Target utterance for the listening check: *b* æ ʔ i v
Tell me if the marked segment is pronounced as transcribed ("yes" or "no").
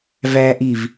no